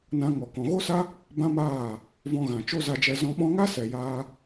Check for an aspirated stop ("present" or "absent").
absent